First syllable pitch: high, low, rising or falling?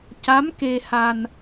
rising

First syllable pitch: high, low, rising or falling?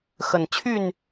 low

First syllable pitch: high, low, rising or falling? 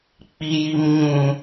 low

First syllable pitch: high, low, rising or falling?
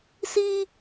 high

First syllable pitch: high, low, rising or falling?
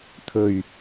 low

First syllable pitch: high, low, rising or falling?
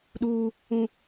high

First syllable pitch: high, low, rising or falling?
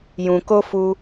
low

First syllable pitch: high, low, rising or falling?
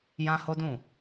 high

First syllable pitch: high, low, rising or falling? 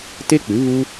high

